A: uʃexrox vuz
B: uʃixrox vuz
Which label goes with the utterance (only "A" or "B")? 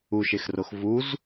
A